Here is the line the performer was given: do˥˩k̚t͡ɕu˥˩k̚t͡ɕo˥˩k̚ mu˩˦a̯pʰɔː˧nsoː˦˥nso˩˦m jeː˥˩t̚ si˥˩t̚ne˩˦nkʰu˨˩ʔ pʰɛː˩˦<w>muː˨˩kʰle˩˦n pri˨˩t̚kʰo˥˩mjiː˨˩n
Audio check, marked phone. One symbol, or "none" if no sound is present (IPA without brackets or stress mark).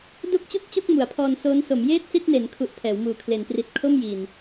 w